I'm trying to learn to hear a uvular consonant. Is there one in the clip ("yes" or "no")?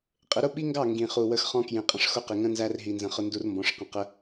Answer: yes